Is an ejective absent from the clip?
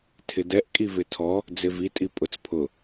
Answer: no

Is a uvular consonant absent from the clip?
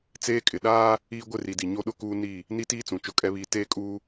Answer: yes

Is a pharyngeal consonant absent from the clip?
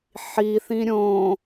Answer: no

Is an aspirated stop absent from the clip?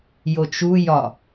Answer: yes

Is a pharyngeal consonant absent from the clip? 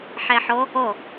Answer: no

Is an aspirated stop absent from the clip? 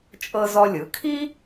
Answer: no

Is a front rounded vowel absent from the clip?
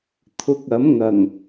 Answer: yes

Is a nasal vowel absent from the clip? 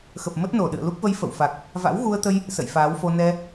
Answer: yes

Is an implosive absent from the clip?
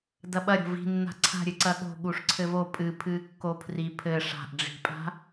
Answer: no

